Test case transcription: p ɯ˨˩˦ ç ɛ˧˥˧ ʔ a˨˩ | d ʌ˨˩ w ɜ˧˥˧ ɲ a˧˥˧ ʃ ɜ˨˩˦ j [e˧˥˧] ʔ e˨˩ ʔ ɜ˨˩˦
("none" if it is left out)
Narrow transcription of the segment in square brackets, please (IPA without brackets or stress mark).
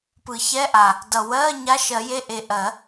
e˧˥˧